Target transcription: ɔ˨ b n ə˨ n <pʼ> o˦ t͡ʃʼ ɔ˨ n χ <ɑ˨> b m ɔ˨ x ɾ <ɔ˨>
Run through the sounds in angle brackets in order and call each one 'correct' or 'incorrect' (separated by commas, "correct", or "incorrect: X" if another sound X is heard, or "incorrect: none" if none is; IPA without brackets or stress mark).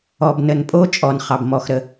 correct, correct, incorrect: ə˨